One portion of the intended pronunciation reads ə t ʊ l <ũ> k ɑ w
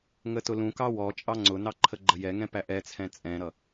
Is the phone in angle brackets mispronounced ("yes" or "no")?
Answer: no